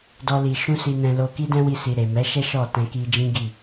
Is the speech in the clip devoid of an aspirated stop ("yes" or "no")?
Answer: yes